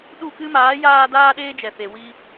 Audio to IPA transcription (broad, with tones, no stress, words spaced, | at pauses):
ɗu˦˨kɨ˦ maː˨˦jaː˧ daː˦ɗeː˦d͡ʒɛ˨fe˨ wi˦